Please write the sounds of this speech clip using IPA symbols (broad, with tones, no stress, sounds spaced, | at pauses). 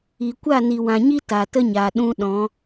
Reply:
i˨ kʷ a˦˨ n i˨ w ã˨ ɲ i˦ t a˨ t ə˦ ɲ a˨ ɗ ũ˧ ɗ ɔ̃˨˦